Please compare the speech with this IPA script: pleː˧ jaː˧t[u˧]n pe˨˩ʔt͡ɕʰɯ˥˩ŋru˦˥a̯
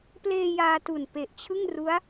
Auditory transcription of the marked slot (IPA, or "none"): u˨˩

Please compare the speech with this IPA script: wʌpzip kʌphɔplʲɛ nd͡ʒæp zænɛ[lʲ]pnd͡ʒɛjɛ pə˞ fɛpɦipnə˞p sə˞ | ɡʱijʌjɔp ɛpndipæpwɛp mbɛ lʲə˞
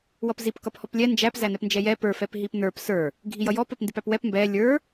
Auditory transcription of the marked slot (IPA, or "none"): none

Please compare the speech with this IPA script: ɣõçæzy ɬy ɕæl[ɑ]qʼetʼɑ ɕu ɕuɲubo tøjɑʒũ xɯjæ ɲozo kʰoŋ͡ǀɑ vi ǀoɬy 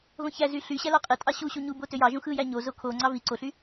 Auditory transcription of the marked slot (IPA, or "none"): ɑ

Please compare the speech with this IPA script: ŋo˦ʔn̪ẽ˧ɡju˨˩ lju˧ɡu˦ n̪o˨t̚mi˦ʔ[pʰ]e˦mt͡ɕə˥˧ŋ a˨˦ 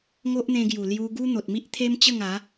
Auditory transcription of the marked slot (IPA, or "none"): t̪ʰ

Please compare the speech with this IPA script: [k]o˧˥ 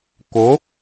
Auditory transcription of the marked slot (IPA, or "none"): k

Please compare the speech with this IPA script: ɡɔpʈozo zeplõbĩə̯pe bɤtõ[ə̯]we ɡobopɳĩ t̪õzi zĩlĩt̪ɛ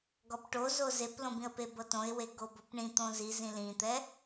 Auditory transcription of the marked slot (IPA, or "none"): ɪ̯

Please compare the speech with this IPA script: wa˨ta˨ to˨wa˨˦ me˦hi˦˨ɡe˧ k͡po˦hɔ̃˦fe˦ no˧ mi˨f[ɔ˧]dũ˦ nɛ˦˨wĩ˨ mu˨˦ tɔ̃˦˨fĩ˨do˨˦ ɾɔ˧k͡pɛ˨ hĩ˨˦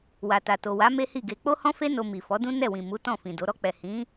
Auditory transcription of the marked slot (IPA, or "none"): ɔ˨˦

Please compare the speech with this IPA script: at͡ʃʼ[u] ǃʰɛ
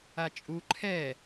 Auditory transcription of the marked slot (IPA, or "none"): u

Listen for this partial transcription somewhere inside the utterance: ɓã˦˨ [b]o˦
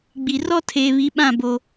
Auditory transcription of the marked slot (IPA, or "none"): b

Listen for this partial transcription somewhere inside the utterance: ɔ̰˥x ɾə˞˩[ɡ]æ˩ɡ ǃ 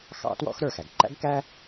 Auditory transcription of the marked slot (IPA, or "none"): x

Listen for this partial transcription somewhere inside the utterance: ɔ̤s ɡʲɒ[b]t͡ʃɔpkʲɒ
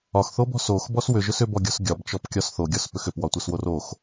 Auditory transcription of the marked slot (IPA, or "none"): b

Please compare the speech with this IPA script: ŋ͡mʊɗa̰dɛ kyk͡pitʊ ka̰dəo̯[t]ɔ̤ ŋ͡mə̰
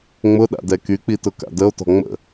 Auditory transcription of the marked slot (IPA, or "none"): t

